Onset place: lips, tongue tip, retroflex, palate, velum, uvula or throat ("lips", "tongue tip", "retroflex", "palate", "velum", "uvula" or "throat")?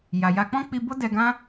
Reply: palate